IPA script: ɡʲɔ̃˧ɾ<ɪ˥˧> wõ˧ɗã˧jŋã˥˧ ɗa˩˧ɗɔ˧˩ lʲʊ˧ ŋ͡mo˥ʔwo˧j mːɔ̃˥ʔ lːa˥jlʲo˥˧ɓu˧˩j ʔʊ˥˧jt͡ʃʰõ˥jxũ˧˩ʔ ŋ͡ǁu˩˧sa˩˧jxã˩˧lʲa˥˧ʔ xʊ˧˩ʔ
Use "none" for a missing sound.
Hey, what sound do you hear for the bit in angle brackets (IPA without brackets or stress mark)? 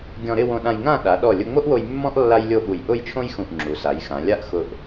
ɪ˥˧